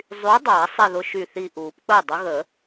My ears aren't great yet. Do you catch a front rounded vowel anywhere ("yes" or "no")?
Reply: yes